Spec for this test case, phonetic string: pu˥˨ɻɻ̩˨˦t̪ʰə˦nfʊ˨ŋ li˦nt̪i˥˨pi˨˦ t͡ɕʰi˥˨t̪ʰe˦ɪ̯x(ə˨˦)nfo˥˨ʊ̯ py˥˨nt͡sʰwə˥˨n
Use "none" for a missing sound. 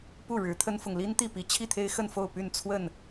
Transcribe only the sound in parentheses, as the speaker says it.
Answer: ə˥˨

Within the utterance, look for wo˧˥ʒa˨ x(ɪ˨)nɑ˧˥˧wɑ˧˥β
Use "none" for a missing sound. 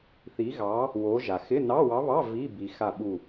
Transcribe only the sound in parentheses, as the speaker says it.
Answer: ɪ˧˥˧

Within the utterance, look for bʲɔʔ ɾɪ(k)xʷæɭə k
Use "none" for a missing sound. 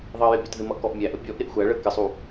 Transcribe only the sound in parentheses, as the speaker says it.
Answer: ʔ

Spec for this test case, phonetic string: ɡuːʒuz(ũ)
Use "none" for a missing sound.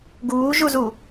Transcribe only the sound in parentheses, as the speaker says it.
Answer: u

